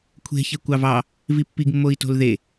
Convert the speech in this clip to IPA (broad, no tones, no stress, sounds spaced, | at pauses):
kʷʰ e̤ ç e kʷ ɑ v ɑ | v i pː i ɡ mː o i̯ t o̤ l ð e